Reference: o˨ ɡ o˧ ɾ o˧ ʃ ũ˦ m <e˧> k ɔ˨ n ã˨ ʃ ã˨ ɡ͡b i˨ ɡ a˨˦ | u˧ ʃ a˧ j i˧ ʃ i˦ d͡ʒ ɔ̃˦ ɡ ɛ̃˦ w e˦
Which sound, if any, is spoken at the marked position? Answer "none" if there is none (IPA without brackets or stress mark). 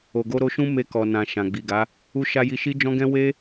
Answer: e˧